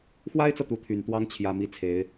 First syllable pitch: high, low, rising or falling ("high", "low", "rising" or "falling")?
high